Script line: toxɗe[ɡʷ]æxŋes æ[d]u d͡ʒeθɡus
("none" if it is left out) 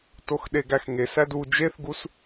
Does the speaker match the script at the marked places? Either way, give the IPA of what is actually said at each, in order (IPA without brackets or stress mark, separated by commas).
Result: ɡ, d